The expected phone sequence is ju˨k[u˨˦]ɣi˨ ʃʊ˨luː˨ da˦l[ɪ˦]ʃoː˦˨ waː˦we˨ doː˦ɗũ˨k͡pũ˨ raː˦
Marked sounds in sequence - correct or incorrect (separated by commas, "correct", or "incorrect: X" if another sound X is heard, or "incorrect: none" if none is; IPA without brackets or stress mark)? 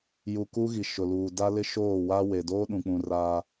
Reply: incorrect: u˦, correct